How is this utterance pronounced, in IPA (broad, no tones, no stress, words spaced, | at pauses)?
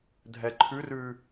dʱɛǃʰʉrʉ